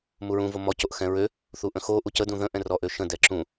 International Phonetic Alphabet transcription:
m u ɹ ũ v o m ɔ c o ʔ x ɛ̃ ɹ ø | θ u ʔ ə̃ x o ʔ u c ə d ũ ð ə̃ ʔ ɛ̃ r ɔ ʔ ø ʃ ə̃ d ɛ ǁ ũ

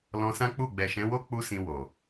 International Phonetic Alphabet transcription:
l ɔ̃˧ s ã˦ k͡p u˦˨ ɡ͡b ɛ˨ ʃ ɛ̃˨˦ w o˦ k͡p u˦ s ĩ˧ w o˨

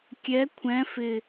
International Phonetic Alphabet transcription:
kʲ ɛ kʷʰ ɛ̃ f ɪ

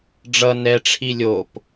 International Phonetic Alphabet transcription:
ɖ͡ʐ ʌ n ɛ ʈ͡ʂʰ i lʲ o p

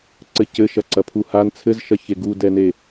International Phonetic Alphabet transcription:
ǀ ɘ c ɘ ʃ ɐ ǀ ɐ pʰ u h a n t͡sʰ ɘ z ʃ ɐ ç e ɡ u d ɛ n e

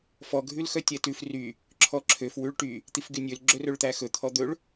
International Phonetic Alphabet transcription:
f ɔ ɡʱ ʉ l x œ tʲ ɛ t ʉ f r y | ǁʰ ɔ ǁʰ ø f w ʉ ɭ ʈ y | t̪ i f ɡ y nʲ ø l ɡ͡ǁ ɵ r ɵ ɭ t̪ æ x ɵ t̪ʰ ɔ d̪ ɵ ɭ

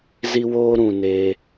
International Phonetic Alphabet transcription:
z i˧ w oː˧ ɾ ũ˨ n e˧

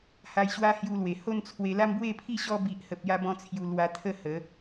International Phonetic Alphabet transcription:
h a˧ j ɕ w a˦ h j u˧ l w e˨˩ h o˥˧ n t͡sʰ w e˧ l a˦ m b w e˥˧ pʰ i˥˧ ɕ ɔ˦ b i˨ ʔ h ə˨ p̚ j a˦ b ɔ̃˦ t͡sʰ j u˧ l w a˧ t̪ʰ ə˥˧ h ə˨˦

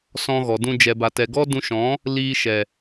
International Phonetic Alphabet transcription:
s ɔ̃˧ ɣ ɔ˨ d ũ˧ d͡ʒ ɛ˨ b a˨ t ɛ˨ ɡ ɔ˦ d ũ˧ ʃ ɔ̃˨˦ | l iː˧ ʃ ɛ˨

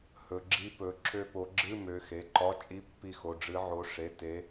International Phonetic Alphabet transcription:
h ɵ˨˦ ɡ͡ǁ i˦˥ p ɵ˨˦ ǁʰ ø˦˨ p o˨˦ ɡ͡ǁ ɨ˧˥˧ m ø˨˦ x e˩˧˩ ǃ ɒ˧˥˧ t͡ʃʼ i˧˥˧ pː i˦˨ x o˩˧˩ ɖ͡ʐ ɨ˨˦ ʕ o˨˦ ʂ e˩˧˩ t e˨˦

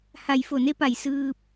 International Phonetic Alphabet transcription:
h a˧˩ j f o˧˩ n e˧˥ p a˧˩ j s ɯː˧ p̚

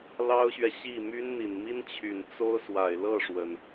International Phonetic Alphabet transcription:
l ɑ˥ ʊ̯ ɕ ɥ ɛ˨ ɕ i˥˩ m y˥ n n̪ i˨˩ n m i˥ n t͡ɕʰ y˨˩ n t͡s o˥ ʊ̯ s w a˨˩ ɪ̯ l ɤ˥˩ ʂ w ə˩ n

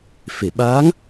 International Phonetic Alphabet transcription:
f e˨˩˨ ɓ aː˧˥ ŋ

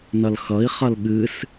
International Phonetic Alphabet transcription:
n ʌ l x ʌ i̯ χ ʌ l ɠ ɨ s

